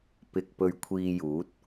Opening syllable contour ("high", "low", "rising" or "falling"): low